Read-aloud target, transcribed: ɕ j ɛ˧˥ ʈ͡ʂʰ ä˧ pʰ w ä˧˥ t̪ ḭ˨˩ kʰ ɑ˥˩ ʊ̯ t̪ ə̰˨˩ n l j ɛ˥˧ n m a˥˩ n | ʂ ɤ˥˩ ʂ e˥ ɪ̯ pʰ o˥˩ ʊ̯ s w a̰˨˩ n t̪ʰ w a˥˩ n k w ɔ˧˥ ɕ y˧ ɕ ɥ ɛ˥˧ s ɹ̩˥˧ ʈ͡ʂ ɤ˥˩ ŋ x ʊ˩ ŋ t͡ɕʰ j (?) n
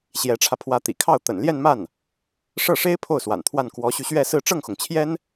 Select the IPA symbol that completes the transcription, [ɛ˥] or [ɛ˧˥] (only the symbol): ɛ˥